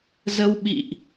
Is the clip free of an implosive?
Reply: no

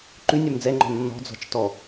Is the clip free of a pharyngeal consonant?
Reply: yes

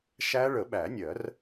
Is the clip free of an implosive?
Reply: no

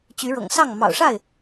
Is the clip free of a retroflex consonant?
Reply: no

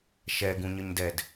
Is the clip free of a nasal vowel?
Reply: no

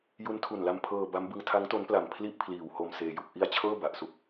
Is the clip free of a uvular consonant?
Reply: yes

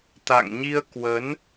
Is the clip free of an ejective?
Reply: yes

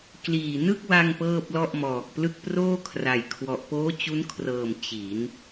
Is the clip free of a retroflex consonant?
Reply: yes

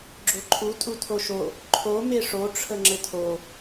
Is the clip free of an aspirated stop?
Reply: no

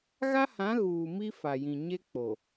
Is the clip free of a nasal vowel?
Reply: no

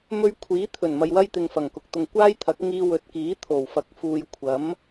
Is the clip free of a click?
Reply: yes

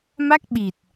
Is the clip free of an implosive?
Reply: no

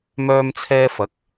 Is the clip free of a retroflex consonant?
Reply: yes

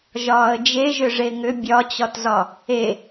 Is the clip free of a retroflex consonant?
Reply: no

